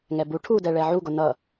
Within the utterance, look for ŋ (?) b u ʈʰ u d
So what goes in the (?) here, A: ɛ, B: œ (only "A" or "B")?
A